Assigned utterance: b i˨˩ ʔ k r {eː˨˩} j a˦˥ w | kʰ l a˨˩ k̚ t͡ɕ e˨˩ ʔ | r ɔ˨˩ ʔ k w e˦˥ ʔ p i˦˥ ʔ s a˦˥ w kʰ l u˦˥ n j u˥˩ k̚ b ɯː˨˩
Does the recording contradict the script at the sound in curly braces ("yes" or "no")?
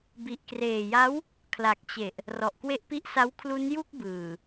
no